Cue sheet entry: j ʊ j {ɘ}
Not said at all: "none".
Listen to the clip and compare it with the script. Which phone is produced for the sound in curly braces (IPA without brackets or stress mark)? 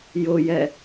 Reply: ɛ